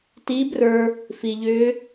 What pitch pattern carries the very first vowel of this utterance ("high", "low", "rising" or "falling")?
rising